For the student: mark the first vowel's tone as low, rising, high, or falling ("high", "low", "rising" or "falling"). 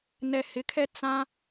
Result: low